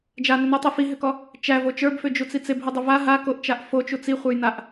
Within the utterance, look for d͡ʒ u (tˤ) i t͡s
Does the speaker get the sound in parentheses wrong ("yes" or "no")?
yes